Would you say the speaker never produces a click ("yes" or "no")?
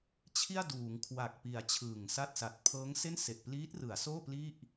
yes